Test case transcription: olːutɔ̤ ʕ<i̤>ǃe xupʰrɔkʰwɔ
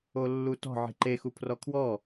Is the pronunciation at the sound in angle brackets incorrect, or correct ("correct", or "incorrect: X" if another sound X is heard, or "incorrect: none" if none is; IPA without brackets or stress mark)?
correct